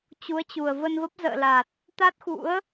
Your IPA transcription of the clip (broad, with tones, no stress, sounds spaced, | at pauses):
t͡ɕ u˨˦ ə̯ t͡ɕ u˨˩ ə̯ v ə˧ n v ə˦˥ p̚ z ə̰ː˧˨ l a˨˩ t̚ | t̪ a˦˥ t̚ x ṵ˧˥ ə̯